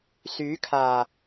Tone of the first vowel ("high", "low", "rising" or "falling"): rising